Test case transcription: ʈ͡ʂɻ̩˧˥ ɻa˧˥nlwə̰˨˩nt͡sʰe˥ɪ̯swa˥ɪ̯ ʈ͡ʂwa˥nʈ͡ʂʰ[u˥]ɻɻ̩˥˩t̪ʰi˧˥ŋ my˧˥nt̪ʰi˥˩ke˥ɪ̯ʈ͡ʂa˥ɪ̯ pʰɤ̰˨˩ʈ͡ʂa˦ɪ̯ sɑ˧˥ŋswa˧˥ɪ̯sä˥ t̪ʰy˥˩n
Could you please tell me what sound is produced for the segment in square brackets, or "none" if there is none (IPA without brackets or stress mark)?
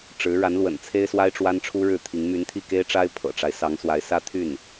u˥